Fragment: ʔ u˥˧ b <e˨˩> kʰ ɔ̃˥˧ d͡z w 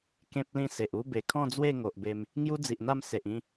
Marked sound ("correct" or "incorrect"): correct